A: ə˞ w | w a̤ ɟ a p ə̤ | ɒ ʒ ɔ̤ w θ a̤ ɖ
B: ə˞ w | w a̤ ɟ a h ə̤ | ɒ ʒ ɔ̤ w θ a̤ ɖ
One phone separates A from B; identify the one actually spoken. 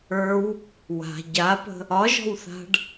A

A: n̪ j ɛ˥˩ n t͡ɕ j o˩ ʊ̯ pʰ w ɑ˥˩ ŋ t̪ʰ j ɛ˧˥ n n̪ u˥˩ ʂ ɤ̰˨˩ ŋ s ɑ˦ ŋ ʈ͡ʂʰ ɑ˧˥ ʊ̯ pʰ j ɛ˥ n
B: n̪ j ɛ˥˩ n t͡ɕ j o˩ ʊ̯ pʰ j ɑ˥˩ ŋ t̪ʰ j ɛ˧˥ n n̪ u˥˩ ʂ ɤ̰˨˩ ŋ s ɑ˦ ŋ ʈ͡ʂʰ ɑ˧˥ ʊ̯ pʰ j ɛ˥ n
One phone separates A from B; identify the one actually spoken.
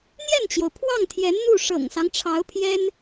A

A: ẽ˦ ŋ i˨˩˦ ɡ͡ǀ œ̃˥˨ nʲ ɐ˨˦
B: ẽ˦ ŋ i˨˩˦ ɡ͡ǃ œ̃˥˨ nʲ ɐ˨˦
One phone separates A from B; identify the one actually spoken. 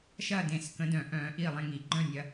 B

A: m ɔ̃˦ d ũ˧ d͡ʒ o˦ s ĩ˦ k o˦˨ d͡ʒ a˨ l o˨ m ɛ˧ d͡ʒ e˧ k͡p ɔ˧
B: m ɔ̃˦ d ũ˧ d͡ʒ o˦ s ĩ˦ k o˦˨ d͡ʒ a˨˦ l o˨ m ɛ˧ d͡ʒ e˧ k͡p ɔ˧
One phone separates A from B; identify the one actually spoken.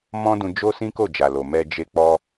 A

